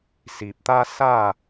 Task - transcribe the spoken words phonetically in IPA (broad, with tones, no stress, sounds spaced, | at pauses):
s i˨ p̚ t̪ a˦ s a˥˧